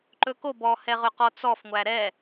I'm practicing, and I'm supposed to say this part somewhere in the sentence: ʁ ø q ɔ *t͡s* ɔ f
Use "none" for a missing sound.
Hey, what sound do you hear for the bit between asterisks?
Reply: t͡s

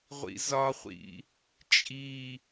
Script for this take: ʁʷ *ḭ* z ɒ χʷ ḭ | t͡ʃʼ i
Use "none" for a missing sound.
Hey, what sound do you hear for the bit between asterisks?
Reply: ḭ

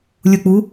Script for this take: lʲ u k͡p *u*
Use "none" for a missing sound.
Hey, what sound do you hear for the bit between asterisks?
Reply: u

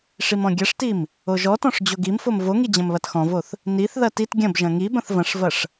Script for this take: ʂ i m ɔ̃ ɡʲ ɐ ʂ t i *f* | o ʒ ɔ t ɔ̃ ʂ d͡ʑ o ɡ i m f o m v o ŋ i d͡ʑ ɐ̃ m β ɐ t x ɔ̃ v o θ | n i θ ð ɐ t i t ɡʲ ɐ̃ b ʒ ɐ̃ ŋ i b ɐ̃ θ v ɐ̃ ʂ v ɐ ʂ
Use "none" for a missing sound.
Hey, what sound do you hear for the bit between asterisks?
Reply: m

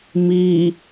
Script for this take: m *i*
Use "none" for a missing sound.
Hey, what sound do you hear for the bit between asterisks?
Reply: iː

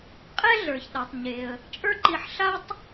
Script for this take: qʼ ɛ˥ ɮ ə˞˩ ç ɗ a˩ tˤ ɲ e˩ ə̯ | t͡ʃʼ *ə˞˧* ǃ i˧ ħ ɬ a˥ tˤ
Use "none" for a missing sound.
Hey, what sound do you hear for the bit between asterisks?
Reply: ə˞˥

